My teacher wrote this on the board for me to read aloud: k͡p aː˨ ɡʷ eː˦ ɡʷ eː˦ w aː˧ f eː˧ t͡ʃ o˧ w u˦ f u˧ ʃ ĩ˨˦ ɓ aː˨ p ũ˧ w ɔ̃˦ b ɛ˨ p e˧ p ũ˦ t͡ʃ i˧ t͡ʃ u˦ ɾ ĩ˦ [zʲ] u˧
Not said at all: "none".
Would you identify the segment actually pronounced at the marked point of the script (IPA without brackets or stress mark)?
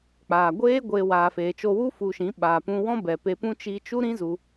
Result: z